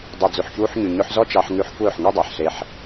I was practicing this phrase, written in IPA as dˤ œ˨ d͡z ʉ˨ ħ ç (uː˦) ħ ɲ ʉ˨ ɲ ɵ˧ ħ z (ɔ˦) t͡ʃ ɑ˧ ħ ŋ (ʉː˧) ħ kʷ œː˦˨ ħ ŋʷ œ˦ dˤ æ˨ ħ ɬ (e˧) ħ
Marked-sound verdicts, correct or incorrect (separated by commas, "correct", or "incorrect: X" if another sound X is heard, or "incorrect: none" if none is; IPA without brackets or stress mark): incorrect: uː˧, correct, incorrect: ʉ˧, correct